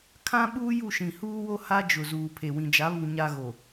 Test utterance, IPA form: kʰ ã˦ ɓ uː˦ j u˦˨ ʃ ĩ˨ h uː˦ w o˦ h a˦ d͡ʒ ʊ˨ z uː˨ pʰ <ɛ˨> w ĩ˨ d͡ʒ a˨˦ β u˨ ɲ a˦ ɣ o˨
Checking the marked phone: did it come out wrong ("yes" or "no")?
yes